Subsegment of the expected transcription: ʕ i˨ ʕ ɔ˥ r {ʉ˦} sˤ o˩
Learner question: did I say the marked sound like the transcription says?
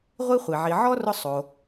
no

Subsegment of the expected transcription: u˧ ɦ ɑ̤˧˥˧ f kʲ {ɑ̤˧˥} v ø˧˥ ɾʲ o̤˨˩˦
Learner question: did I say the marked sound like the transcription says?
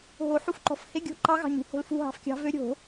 yes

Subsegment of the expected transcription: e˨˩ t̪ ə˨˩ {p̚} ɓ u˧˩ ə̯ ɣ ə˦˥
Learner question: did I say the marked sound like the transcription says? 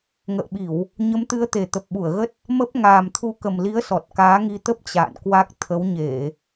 yes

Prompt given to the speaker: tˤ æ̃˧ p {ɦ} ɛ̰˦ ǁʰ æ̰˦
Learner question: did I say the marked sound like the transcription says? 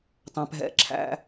yes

